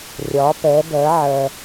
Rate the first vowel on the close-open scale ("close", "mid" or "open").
open